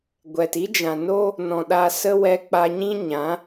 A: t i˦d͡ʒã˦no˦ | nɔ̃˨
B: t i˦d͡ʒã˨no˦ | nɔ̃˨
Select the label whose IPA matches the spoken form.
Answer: B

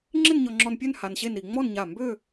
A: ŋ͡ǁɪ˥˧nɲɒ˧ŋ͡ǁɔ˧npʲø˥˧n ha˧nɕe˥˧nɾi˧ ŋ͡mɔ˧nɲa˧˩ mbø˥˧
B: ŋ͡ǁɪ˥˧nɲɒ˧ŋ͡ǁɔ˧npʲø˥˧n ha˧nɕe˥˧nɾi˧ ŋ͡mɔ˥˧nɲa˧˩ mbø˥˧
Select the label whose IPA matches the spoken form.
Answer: B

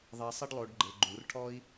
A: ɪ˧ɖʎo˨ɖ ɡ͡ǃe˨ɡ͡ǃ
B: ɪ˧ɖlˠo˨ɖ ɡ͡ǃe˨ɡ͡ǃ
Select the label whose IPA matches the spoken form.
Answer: B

